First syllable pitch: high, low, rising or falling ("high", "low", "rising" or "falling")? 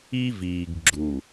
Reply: high